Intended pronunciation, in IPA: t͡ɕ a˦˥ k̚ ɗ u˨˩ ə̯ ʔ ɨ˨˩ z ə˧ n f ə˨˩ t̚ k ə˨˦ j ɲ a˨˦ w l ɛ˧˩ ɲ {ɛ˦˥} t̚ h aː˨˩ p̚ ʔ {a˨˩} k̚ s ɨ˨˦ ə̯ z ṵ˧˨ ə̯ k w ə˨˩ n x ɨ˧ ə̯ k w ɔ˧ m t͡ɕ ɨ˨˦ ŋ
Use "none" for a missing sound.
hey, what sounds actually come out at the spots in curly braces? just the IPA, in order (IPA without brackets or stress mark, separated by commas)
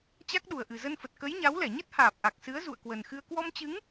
ə˦˥, a˨˩